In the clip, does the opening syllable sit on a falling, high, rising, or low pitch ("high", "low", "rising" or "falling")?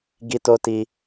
high